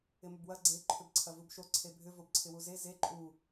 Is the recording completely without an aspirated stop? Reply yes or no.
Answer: no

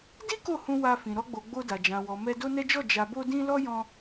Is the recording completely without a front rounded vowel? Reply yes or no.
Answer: yes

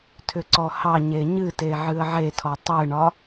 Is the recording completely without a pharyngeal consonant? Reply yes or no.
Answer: no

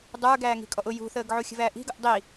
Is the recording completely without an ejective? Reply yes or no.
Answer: no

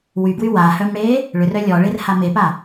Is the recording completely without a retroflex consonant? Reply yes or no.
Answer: no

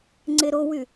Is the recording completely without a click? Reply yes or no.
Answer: no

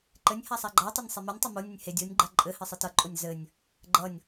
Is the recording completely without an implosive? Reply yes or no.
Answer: yes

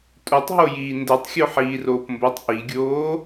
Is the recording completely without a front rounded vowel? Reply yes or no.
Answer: yes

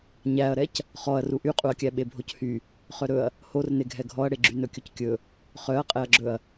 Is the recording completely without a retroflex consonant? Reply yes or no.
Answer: no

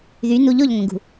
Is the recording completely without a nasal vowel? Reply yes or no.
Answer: no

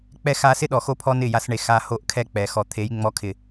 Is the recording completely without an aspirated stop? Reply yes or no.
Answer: no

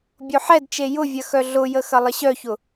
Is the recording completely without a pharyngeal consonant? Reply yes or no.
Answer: no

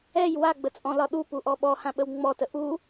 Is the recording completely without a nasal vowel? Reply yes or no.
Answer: no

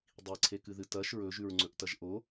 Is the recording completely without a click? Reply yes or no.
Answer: no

